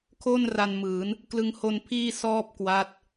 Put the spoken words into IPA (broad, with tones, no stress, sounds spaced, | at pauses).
kʰ o˥˩ n r a˧ n m ɯː˩˦ n | k l ɯ˧ ŋ h o˧ n pʰ iː˥˩ s ɔː˥˩ p̚ k w a˦˥ t̚